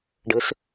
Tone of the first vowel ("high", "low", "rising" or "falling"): rising